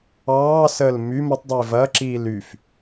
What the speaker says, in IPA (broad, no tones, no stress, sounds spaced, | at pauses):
ɑː s əː l m y m ə tˤ dˤ iː v ɐ ǁ iː l y f